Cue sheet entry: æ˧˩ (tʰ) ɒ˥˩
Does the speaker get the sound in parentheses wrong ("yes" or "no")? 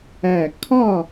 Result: yes